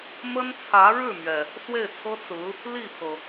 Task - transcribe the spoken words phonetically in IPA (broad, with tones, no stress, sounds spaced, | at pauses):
m ə˥ n t͡sʰ ä˧˥ ɻ ɻ̩˥˩ m ɥ ɛ˩ | s w e˥˩ ɪ̯ t͡sʰ ɤ˥ t͡s ɹ̩˧˥ | l i˥˩ pʰ ɤ˩